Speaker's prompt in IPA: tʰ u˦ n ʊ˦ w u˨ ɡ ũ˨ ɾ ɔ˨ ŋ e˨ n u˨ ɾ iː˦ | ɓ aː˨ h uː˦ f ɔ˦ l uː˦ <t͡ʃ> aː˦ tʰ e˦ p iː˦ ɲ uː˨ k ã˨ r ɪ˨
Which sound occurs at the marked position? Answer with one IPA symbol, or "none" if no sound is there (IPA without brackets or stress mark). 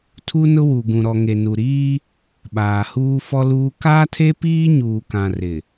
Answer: k